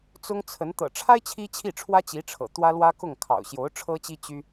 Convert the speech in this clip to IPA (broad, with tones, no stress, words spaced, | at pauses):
t͡sʊ˥ŋt͡sʰə˧˥n t̪ɤ̰˨˩ʈ͡ʂʰa˥ɪ̯ t͡ɕʰi˥t͡ɕʰi˥˩ʈ͡ʂʰwä˥ t͡ɕi˧˥ʈ͡ʂʰɤ̰˨˩ t̪wä˥lwä˥kʊ˥˩ŋ kʰɑ̰˨˩ʊ̯ɕjo˧˥ʊ̯ ʈ͡ʂʰɤ˥t͡ɕi˥ t͡ɕy˥